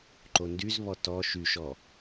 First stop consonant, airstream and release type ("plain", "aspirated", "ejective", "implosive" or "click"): click